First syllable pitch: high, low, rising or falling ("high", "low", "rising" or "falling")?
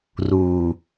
low